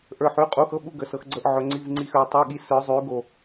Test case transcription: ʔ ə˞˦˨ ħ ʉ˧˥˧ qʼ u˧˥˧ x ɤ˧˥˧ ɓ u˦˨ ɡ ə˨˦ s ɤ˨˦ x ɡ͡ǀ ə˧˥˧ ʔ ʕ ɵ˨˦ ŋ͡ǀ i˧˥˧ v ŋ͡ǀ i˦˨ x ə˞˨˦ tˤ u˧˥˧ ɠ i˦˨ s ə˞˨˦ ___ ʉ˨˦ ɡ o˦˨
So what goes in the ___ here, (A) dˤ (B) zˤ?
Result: B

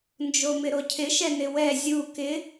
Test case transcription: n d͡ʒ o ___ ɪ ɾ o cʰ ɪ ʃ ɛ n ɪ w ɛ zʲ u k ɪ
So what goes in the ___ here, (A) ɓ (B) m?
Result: B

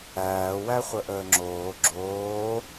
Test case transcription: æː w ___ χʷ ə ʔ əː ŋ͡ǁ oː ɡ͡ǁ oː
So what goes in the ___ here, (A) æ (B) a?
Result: A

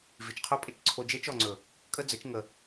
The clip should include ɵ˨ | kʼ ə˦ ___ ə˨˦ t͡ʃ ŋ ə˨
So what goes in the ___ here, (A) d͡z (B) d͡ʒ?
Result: A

